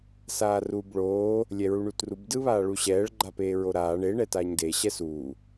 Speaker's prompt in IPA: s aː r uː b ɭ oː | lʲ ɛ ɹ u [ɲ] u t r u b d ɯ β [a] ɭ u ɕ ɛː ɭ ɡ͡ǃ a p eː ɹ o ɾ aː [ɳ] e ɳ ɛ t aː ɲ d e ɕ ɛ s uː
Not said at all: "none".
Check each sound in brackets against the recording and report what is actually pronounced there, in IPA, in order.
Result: ɳ, aː, ɳ

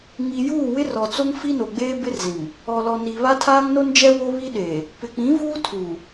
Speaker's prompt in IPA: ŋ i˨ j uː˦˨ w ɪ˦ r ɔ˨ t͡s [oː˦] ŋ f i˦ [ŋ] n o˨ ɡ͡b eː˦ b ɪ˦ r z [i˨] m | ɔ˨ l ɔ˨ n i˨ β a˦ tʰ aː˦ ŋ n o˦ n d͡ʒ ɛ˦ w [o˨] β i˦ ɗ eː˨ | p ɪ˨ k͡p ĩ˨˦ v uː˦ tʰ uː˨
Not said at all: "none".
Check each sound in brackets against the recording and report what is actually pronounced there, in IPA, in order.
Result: o˦, none, ĩ˨, o˦

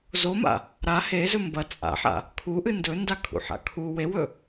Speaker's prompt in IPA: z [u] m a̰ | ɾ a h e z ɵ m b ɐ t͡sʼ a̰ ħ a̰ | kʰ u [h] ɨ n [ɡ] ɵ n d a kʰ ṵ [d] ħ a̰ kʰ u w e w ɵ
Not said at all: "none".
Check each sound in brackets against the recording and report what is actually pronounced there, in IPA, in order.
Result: o, ʔ, d, none

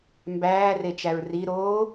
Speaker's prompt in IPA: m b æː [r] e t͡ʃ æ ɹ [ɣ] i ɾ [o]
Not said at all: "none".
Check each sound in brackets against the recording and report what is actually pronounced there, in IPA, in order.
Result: r, r, oː

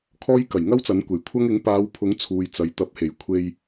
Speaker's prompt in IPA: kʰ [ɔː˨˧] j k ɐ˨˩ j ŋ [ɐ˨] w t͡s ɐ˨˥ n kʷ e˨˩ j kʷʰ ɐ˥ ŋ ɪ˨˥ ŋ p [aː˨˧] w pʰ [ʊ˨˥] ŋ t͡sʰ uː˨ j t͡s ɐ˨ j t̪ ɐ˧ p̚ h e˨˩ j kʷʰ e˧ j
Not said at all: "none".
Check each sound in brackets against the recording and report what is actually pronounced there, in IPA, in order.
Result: ɔː˥, ɐ˥, aː˨˧, ʊ˨˥

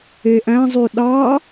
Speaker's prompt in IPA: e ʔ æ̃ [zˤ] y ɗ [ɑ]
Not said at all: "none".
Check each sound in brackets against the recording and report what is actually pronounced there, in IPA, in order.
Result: zˤ, ɑ

